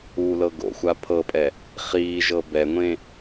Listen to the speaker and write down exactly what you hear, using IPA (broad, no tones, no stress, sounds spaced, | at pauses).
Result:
u l ɤ ɡ o̰ xʷ a pʰ ɤ pʼ ɛ | χ iː ʒ ɤ b ɛ ŋʷ ẽ